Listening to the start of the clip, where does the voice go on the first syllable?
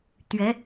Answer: rising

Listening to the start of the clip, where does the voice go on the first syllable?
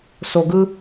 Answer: low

